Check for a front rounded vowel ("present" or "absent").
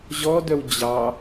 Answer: present